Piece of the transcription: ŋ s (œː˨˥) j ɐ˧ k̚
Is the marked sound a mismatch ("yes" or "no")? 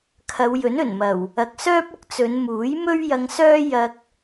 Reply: yes